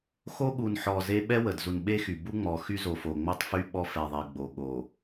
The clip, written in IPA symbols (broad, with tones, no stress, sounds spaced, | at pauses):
x o˦ ɠ u˨ n ħ ɔ˨ z e˦ ɓ ɛ˦ w ə˨ d z u˨ n ɓ e˦ x y˨ b u˦ ŋ͡m ɔ˨ x y˦ z o˨ f o˨ ŋ͡m o˦ tˤ f y˦ ɓ ɔ˦ f ɛ˨ ðˤ e˨ ɡ͡b o˨ ɠ o˨